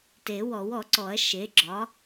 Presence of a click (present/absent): present